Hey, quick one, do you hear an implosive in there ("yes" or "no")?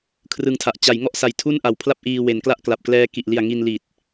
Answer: no